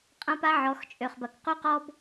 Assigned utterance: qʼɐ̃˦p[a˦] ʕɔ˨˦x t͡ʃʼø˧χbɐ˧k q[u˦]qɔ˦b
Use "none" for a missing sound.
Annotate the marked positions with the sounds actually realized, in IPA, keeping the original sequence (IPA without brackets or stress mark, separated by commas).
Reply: a˦, u˦